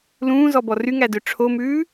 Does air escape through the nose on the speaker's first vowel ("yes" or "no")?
yes